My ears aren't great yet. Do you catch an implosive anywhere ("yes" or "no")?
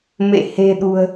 yes